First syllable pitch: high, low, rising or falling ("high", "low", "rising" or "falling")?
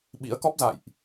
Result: rising